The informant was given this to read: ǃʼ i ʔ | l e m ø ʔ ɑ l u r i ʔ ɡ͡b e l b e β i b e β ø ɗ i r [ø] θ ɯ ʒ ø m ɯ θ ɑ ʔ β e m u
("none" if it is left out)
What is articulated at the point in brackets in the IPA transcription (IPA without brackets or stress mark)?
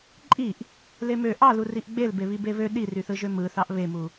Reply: y